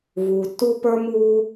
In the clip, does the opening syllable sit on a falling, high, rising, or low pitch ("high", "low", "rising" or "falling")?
low